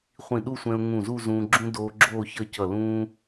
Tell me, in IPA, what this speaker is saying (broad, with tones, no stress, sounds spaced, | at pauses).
χʷ ĩ˧˩ ɗ u˥˧ sʷ ɛ̃˧ ʊ̯ ŋ ũ˧˩ z u˥˧ z ũː˧ ɡ͡ǁ ũ˥ d oː˧ ɡ͡ǁ oː˥˧ ç ʌ˥˧ c ʌ˧˩ l ũː˥